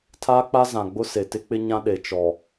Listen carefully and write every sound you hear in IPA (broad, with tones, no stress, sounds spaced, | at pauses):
tʰ aː˦ k͡p a˦ z ã˨ ɡ͡b ʊ˦ s e˨ t ɪ˦ k͡p ɪ˦ ɲ ã˦ ɗ e˨ t͡ʃ ɔ˨